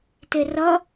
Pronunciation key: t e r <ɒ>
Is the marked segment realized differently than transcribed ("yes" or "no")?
yes